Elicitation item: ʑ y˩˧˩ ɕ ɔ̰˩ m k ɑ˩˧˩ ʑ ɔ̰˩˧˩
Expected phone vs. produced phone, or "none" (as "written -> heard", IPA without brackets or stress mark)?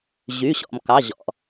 none